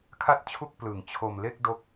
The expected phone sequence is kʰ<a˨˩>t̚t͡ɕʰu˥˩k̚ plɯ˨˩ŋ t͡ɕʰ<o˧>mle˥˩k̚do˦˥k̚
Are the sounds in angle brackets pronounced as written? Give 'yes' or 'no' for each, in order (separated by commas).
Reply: no, yes